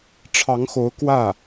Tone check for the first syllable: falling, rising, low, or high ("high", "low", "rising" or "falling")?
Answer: rising